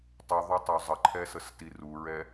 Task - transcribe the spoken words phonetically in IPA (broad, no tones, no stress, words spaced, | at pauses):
tˤuðˤotˤo zˤəǃʰɛsəsti ruɹɛ